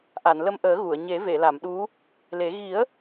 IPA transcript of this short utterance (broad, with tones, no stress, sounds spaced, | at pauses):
ʔ a˨˩˨ n l ə˧ m ʔ əː˨˩˦ ɣ u˨˩˨ ə̯ ɲ e˨˩˦ v e˨˩˨ l a˨˩˨ m ɗ u˧˥ | l e˨˩˦ ɣ i˨˩˦ ə̯